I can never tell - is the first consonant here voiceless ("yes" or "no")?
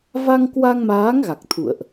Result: no